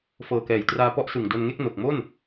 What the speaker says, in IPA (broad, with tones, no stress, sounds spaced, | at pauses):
f ɤː˨˩ k ɛː˩˦ j t r aː˧ p ɔ˦˥ ʔ s ɯ˨˩ ŋ d o˧ n ŋ e˥˩ k̚ n o˨˩ k̚ m o˥˩ n